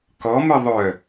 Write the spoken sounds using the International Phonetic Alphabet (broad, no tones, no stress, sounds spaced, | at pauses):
k ɔ m ɨ ðˤ œ